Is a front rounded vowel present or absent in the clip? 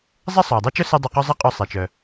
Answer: present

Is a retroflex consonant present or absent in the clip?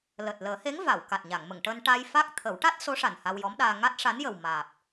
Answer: present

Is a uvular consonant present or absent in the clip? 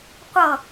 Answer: present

